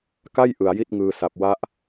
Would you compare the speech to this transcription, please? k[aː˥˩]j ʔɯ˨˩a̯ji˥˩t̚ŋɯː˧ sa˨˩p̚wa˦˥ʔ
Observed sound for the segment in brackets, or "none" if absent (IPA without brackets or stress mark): a˥˩